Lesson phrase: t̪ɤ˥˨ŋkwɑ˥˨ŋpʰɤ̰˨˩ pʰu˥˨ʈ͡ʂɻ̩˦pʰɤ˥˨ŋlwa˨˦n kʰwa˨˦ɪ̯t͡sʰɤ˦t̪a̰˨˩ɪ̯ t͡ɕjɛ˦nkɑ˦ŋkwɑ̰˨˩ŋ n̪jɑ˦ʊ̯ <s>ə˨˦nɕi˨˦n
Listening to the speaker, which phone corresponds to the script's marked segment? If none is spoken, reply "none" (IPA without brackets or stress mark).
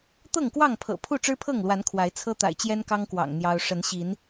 ʂ